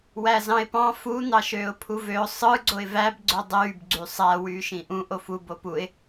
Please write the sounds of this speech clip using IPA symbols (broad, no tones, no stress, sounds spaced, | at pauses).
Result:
w æ z ɑ̃ ɪ̯ p ɑ̃ f u n̪ ɑ ʃ øː ʊ̯ pʰ u v ø ʊ̯ sˤ ɯ ɡ͡ǀ o ɪ̯ v æ b ɡ͡ǀ ø dˤ yː b ɡ͡ǀ y sˤ æ w yː ʃ ĩ ʔ ũ ʔ o f u b o p u ɪ̯